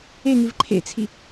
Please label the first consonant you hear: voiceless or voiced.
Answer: voiced